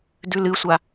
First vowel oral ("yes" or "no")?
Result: yes